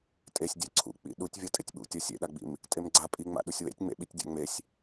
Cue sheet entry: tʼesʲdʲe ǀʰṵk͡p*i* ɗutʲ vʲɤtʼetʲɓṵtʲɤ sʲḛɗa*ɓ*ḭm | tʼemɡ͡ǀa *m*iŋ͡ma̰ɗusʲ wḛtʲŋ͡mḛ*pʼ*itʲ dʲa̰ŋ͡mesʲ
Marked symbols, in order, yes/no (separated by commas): no, no, no, no